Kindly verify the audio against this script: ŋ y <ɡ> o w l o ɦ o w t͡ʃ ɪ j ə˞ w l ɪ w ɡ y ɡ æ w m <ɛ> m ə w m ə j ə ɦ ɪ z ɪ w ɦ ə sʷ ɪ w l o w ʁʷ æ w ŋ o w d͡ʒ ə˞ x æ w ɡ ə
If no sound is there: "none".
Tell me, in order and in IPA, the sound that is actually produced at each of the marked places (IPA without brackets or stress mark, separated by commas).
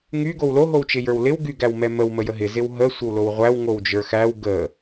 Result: ɡ, ɛ